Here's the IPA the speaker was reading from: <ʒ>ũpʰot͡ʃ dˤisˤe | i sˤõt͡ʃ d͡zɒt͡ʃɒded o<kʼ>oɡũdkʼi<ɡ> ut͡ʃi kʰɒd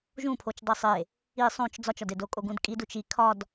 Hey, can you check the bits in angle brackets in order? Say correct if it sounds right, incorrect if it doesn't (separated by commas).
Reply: correct, correct, incorrect